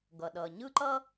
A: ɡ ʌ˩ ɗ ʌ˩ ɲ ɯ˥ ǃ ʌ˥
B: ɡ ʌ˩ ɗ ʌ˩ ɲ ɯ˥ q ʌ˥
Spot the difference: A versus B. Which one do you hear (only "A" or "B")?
A